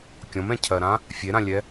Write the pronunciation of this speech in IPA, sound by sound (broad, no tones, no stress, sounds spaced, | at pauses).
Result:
kʲ ɔ̃ m ɛ̃ cʰ ɜ ɾ ã | fʲ e ɾ ã lʲ ɛ